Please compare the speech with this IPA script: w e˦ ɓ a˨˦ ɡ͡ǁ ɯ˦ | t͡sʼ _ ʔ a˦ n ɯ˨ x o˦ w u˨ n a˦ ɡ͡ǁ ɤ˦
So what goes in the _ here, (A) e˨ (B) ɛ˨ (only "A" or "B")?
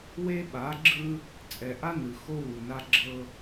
B